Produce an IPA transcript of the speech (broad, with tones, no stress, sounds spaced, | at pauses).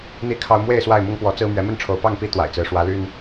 n̪ i˥˨ kʰ ɑ˦ ʊ̯ m w e˥˨ ɪ̯ s w a˥˨ ɪ̯ m ʊ˦ ŋ p w ɔ˨˦ t͡s ɹ̩˦ m ɥ ɛ˨˦ m ə˥˨ n ʈ͡ʂʰ o˨˦ ʊ̯ p ɑ˥˨ ŋ p i˦ t̪ w a̰˨˩ ɪ̯ t͡s ɹ̩˨˦ ʂ w ä˨˦ l y˦ n